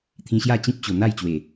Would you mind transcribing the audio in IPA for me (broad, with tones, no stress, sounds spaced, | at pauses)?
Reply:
t̪ʰ ĩ˧ ɕ j a˥˧ t͡ɕ ĩ˦ p̚ t͡ɕ o˨˩ n̪ a˥˧ j t͡ɕ w e˨˩